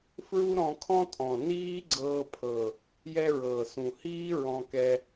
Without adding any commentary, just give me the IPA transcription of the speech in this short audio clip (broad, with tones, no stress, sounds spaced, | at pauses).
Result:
f ɹ u˦ ɾ ɔ̃˧ kʰ ɔ̃˦ tʼ ɔ̃˨ n iː˦ ɡ͡ǀ ɤː˧ pʰ ɤ˨ | j ɛ˧ ɹ ɤː˨ s ũ˨ h iː˦ ɹ ɔ̃˧ k ɛ˧